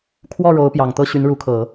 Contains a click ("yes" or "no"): no